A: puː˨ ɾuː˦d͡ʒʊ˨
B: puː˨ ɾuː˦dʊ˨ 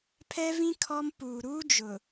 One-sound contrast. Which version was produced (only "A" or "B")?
A